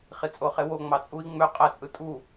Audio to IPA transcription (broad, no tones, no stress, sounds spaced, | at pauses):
χ i t͡sʼ o χ e w o ŋ͡m ɑ t͡sʼ u i̯ ŋ͡m ø qʼ æ t͡sʼ ɯ tʼ u